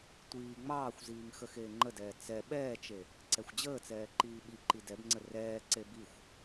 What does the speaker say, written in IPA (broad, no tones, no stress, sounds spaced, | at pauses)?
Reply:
tʷ iː ŋ͡m ɑː xʷ z iː ŋ x ə x eː ŋ͡ǃ ə d ɛː t͡s ɛ ɓ ɛː t͡ʃ e | ǀ ɛ xʷ d͡ʑ əː t͡s ɛː ǃ iː ɓ i ǃ i d ɛ b ŋ͡ǀ ə r ɛː ǀ e b i xʷ